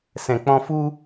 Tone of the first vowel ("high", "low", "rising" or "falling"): low